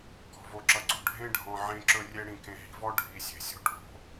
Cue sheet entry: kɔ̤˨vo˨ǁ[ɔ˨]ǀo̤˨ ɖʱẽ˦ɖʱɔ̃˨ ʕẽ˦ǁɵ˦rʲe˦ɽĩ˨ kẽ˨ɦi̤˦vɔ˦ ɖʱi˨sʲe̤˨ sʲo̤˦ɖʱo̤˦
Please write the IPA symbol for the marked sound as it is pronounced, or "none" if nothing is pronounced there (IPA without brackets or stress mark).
ʌ˨